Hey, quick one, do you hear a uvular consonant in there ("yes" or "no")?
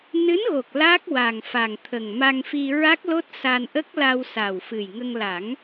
no